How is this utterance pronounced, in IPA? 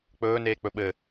k͡pɵːneːk͡pɵ ɓɘ

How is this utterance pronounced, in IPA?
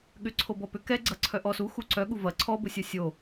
ɠʏǀʰobɔ pʏ kɛɡ͡ǀɐǀʰœ ʔɔ suxu ǀœɠu vɐ ǀʰɔbʊsʲɐ sʲo

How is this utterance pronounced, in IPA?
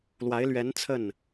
lwa˧˥ɪ̯lɥɛ˧˥n t͡sʰə˥˩n

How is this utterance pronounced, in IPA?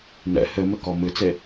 nɛ̰ hɘmɘkɔ mɨt͡se

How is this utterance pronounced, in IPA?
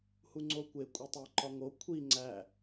huŋ͡ǀokʷe kʷʼetˤæǃɒŋo kʷʰi ŋ͡ǀæ

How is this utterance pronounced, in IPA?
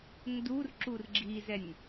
ndurǁur ɡ͡ǁizɛnʲ

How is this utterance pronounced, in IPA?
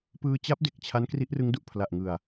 pɯː˧t͡ɕa˦˥p̚ de˨˩k̚t͡ɕʰa˦˥n kri˦˥ʔrɯ˦˥ŋdu˨˩ʔ pʰla˨˩ʔŋɯ˨˩a̯

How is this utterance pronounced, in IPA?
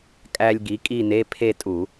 kʼæ˧lʲ ɡi˩˥kʼi˥˨ne˧˥˧ pʰe˥˨tʼu˧˩˧

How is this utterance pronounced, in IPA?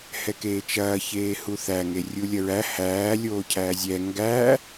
hɛkeːt͡ʃɐː çeːhuθæ ŋerʲulʲɐɹæ hæː lʲoːcʰæːzʲɛ ŋɡæ

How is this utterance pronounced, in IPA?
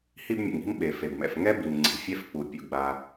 hi˥bmʲṵ˩ŋi̤˥mɓe˩ fe˩bmɛ̰˩fŋɛ˥bi˩m ŋ͡ǀi̤˩fʲɛ˥f k͡pu˩ pʲṵ˩ɡ͡ba˩

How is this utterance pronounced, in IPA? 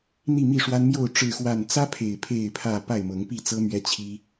n̪i˥˨mi˥˨ʂwa˦nmjo˥˨ʊ̯ ʈ͡ʂɻ̩˥˨xwa˥˨n t͡sä˦pʰe˨˩ɪ̯ pʰe˥˨ɪ̯pʰä˥˨ pa˥˨ɪ̯mɤ˨˦ŋpi˥˨t͡sɤ˦ mɥɛ˦t͡ɕʰi˦

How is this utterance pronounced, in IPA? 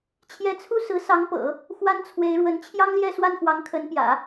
t͡ɕʰjɛ˧˥t͡sʰu˥ sɹ̩˧˥ sɑ˧˥ŋpɤ̰˨˩˦ | xwa˥nt͡sʰwe˧˥ɪ̯ɻwə˧˥n t͡ɕʰjɑ˥ŋljɛ˥˧ swa˥˩nxwɑ˧˥ŋkʰə˧˥npjä̰˨˩˦

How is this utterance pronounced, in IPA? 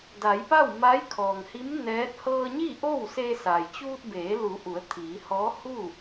da˩˧jpa˥˨w ma˧˥jkʰɔː˩ŋhi˧˥m nɛː˧˥t̚ hɤː˧ɲi˥˨ ʔo˥˨wse˧sa˩j t͡ɕuː˧t̚beː˩˧lu˩˧ ʔu˩˧ə̯t̪ʰiː˩˧hɔː˧˥ hu˥˨

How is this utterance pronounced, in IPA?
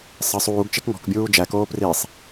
sˤə sˤuːɡt͡ʃek ŋɔ̤kbʲuː d͡ʒækoː prisˤ

